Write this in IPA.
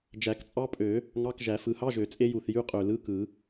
d͡ʒ æ˨˩˦ k t͡sʼ ɑ˦˥ pʼ ø˨˩˦ | ŋ ɑ˧˥˧ k ʒ æ˨˩˦ f ɯ˨˩˦ h ɑ˧˥˧ ʒ ø˨˩˦ t͡sʼ e˦˥ j u˨˩ θ j y˧˥˧ qʼ ø˨˩ l ɯ˧˥˧ k ɯ˨˩˦

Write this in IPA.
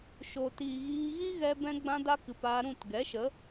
ʃ o˨ t iː˨ ɣ iː˧ ɣ i˦ ɣ ɛ˧ b ɛ̃˧ ɡ͡b ã˦ d a˦ k ɨ˨ p aː˧ ɾ ũ˦˨ t ɡ ɛ˨˦ ʃ ə˨˦

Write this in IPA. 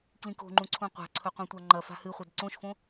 k l ĩ k o̤ ŋ͡ǃ ũ ǀʰ ũ qʷ a̤ ǀʰ ɵ qʷ ẽ tʷ a ŋ͡ǃ ɐ f a̤ h ɨ χʷ ɐ d ǀ õ ʃ f õ

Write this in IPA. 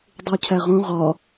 dˤ u cʰ æ ʁ õ ʁ ɒ

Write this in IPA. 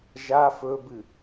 ʒ a f ɵ b ɨ

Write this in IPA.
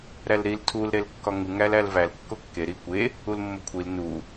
ɾ æ l ɾ i l tʰ u l ɾ e l kː ɒ ŋ u ŋ æ l æ l v æ l kː o kː e ɾ i kʷ e | u l mː o kʷʰ i l n u

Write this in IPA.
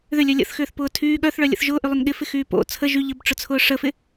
ð ʏ lʲ œ lʲ ə̰ θ x ʏː θ p ʊː tʰ yː ɠ œ θ ɭ œ lʲ ə̰ θ ʒ ʊː ʔ y lˠ ʏ n ɠ ɪ f ɪ x yː p o̰ t͡sʰ ə ʒ y ʎ ə b ʈ͡ʂ ʊ t͡sʰ ʊː ʂ ə f ɪ

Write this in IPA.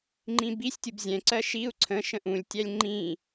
ŋ͡ǃ ĩ b i sʲ tʲ u b zʲ ɛ̃ ǀ ɜ ʃ i u̯ ǀʰ ə̃ ʃ ə̃ ʔ ũ lʲ tʲ æ lʲ ŋ͡ǃ ĩ

